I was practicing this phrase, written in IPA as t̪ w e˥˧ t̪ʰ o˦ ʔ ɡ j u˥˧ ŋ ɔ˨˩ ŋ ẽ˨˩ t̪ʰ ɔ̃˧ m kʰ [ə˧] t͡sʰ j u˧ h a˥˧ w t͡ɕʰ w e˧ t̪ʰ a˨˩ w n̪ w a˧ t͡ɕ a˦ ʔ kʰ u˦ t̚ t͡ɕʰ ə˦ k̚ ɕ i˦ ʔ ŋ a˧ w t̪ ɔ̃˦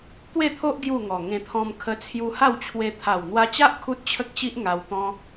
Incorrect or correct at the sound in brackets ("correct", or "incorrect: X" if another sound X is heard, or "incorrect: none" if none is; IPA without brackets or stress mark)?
correct